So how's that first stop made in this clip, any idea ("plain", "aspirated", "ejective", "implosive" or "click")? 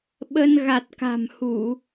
implosive